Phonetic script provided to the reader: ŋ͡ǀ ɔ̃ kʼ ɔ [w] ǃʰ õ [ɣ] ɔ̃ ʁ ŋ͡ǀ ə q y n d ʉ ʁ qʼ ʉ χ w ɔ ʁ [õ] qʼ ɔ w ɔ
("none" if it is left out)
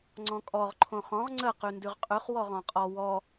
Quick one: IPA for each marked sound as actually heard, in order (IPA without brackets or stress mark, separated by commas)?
ʁ, χ, ɔ̃